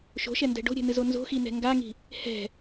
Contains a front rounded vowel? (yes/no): no